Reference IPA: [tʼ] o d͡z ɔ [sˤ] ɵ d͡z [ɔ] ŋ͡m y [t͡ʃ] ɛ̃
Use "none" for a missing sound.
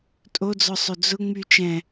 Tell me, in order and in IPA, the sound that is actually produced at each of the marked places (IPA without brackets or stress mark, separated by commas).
tʼ, sˤ, ʊ, t͡ʃ